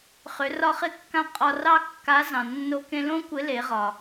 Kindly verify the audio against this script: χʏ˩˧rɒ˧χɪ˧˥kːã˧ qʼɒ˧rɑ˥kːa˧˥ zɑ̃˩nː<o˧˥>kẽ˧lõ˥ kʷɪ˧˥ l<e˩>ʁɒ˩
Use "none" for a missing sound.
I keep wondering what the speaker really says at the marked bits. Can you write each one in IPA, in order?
o˧, e˩˧

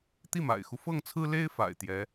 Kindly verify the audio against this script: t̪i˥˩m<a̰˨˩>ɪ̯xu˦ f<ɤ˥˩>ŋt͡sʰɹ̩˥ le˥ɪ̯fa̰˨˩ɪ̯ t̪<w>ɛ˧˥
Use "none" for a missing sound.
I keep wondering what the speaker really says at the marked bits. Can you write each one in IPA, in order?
a̰˨˩, ɤ˥˩, j

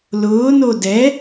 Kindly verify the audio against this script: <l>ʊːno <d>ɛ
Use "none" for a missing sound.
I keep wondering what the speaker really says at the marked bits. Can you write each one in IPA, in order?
l, d

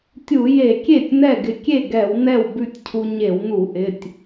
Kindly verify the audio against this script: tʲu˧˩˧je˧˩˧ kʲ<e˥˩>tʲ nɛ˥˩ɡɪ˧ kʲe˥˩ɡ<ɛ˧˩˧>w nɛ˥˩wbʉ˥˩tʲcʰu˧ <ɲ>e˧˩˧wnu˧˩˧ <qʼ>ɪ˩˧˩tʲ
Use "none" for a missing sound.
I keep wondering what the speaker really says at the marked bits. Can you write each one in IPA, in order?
e˥˩, ɛ˧˩˧, ɲ, ʔ

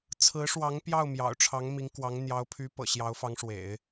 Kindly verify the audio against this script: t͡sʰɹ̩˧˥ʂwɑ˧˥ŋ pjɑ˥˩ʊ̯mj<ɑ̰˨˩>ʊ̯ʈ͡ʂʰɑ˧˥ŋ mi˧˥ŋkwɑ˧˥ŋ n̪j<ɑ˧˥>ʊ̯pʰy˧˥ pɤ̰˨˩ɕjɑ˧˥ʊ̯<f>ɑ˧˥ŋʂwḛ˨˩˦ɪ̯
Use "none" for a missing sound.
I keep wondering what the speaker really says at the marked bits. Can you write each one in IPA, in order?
ɑ̰˨˩, ɑ˧˥, f

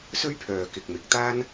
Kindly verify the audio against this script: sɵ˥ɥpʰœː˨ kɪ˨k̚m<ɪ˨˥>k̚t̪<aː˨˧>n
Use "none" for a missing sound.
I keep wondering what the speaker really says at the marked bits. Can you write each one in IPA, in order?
ɪ˨, aː˥

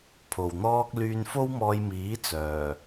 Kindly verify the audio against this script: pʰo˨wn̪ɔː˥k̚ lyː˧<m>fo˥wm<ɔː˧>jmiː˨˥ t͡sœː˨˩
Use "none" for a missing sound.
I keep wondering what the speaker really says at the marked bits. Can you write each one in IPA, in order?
n, ɔː˧

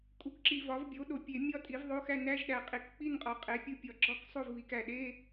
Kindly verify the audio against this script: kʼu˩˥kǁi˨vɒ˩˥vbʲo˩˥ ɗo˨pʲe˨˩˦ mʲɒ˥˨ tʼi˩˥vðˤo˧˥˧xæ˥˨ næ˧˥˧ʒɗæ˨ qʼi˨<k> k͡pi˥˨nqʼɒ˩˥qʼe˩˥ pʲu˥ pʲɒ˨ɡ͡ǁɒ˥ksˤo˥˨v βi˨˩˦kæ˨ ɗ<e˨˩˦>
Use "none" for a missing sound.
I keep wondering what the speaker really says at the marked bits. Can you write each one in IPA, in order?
k, e˧˥˧

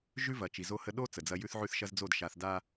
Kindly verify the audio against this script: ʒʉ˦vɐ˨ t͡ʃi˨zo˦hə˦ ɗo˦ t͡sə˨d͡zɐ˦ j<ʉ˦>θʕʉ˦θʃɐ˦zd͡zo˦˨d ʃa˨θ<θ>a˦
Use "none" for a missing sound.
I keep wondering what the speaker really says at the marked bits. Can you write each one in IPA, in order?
ʉ˦, d

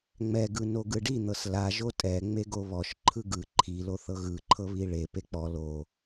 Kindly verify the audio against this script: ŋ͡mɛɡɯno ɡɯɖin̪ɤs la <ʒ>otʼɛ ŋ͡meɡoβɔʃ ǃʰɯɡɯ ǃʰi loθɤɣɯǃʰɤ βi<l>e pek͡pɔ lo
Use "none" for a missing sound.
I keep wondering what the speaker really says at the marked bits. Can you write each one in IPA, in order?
ʒ, ɭ

